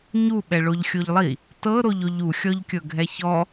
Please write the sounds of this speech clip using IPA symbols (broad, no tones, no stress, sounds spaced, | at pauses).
ɲ u ɓ ɛ ɭ o ʎ xʲ o ʎ lˠ i | t ɤ ɾ o ʎ o ʎ u xʲ ɔ ʎ kʲ ɤ ɡʱ ɛ ç ɔ